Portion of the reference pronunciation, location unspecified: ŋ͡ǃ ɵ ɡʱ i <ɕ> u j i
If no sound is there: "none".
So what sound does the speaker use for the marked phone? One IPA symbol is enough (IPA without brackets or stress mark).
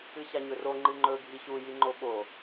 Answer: ɕ